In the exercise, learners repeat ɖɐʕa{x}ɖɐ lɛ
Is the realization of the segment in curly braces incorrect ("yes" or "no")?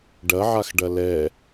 no